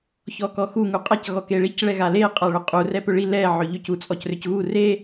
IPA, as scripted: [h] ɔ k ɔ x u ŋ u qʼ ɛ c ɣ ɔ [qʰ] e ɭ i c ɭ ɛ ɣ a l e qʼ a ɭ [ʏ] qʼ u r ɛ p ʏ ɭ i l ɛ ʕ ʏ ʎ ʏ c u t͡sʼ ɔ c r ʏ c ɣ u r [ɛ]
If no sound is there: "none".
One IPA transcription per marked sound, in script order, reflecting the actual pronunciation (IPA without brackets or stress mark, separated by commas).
ç, k, ʏ, e